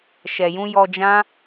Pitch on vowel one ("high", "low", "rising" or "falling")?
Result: low